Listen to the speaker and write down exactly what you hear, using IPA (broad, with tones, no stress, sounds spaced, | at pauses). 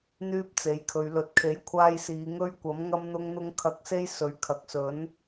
n̪ yː˥ p̚ t͡s e˨˥ j kʰ ɵ˨˧ ɥ l ɵ˨ t̚ kʰ e˨˥ j kʷʰ aː˧ j s iː˨˧ ŋ ɵ˥ ɥ kʷ ɐ˨˥ m ŋ ɐ˥ m n̪ ʊ˥ ŋ n̪ ʊ˥ ŋ kʰ ɐ˧ k̚ s e˥ j s ɵ˨˥ ɥ kʰ ɐ˨ k̚ s ɵ˨˥ n